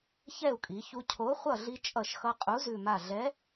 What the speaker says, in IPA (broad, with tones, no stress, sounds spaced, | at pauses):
ç ɛ˥˨ u̯ kʼ i˩˧ ç u˧ cʰ o˨˥ χʷ ʌ˥˨ ɮ i˧ t͡ʃʼ ʌ˧˩ ʃ x ʌ˧ qʼ u˨˥ z ʉ˧˩ m a˧˩ ɮ ɛ˨˥